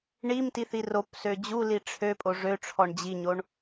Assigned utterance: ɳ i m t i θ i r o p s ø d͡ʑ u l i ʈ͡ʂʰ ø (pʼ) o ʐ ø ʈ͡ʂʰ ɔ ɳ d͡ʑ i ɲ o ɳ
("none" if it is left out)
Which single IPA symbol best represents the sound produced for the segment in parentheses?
pʼ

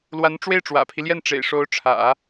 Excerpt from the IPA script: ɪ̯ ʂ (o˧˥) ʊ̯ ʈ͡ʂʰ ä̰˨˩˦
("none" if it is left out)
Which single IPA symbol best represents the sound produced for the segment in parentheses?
o˧˥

